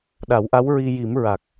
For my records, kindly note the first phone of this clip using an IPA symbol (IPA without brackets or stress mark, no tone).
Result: ɗ